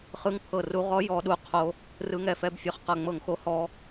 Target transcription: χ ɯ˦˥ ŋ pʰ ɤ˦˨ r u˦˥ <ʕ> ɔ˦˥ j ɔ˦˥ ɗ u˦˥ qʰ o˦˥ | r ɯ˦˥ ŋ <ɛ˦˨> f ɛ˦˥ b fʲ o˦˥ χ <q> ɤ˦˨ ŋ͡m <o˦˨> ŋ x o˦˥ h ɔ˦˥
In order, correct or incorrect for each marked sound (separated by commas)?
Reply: incorrect, correct, correct, incorrect